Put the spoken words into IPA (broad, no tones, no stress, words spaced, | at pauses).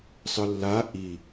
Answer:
sˤɯlːa ʔi